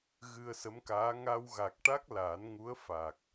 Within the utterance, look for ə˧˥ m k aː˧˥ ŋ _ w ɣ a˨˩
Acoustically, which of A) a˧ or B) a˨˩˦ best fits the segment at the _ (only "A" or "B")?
A